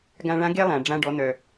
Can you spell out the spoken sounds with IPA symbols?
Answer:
ɡ ã˧ ɭ ã˧˥ ɡ e˥ lˠ ã˩ ɖ͡ʐ ã˧ ɖ ɔ˩˧ n̪ œ˩

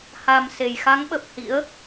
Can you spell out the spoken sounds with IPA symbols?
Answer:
h a˨˩ m s e˨˩ j x a˨˦ ŋ ɓ ə˨˩ p̚ h ḭ˧˥ ə̯

